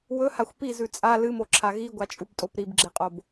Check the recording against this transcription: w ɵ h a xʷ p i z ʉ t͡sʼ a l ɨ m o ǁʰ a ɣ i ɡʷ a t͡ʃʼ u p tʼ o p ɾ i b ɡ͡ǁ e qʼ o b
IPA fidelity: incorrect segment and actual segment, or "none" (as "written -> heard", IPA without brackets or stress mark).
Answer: none